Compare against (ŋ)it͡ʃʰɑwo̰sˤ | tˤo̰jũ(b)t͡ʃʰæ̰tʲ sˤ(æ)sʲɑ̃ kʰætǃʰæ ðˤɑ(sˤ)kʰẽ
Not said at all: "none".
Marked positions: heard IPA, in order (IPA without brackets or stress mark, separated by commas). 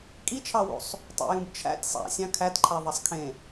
kʼ, b, æ̰, sˤ